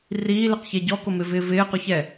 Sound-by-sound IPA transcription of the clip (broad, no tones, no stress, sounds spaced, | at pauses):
r iː l ɪ q ç e ɟ ɔ k o m ɪ v ɪː v ɪː q ʊ ç ɛ